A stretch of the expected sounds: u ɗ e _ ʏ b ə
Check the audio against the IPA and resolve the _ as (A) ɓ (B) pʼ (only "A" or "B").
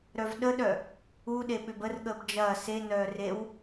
A